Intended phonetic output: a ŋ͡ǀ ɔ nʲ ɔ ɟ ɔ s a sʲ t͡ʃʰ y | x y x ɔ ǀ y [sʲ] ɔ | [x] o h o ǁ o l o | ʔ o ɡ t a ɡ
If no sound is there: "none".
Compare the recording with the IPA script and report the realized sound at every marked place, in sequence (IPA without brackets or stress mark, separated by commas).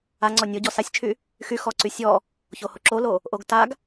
sʲ, ç